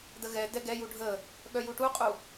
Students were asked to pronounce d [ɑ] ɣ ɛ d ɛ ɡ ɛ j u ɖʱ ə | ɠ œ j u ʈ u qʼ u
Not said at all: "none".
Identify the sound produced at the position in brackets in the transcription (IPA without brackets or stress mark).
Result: ə